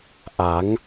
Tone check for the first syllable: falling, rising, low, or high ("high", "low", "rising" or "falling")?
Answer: rising